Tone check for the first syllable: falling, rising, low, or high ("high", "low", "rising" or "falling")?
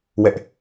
high